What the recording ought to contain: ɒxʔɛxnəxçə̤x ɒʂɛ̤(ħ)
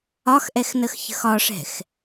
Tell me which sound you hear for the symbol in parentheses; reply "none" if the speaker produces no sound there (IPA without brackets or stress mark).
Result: x